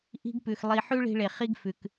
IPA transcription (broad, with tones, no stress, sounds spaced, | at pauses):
ʔ i̤˦ ɡ p ʉ˨ x lˠ i˧ ħ ʉ˦ ɭ i̤˧ ɭ e˨ χ i˦ ɡ f ʉ˨ k